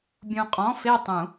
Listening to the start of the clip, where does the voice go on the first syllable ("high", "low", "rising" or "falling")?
low